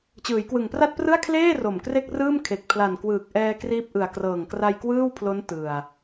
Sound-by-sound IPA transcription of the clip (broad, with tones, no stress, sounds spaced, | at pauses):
t͡ɕ ɯː˩˦ j k w ɯ˨˩ ŋ p r a˥˩ t̚ p r ɯ˥˩ a̯ kʰ l eː˥˩ r o˨˩ m k r e˥˩ k̚ r ɯː˥˩ m kʰ e˨˩ k̚ pʰ l a˨˩ n k w ɯː˨˩ k̚ ʔ ɛː˧ k r iː˦˥ p̚ ʔ ɯ˨˩ a̯ k r ɤː˨˩ ŋ k r a˧ j k w ɯː˥˩ w pʰ l o˦˥ n t ɯ˨˩ a̯